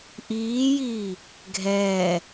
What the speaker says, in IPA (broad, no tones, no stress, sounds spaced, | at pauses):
ʔ iː j iː | ɡʱ ɛː